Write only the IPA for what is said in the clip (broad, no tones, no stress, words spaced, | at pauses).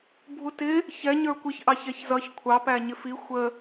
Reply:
bʱutɪ | çɛ ɲə˞kʷiç ʔɑçɛçzʌç kʷʰɑ pæɲɪfi xʷə